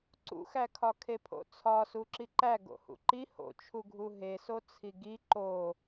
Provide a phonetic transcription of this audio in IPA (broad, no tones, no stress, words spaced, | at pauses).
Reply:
ǀṵxækʰɒ kʰepʰo̰t͡sʰɒ suǁiǃæ ɡo̰hṵǃi ho̰t͡ʃʰuɡʱu ɦeso t͡sʰiɡi ǃo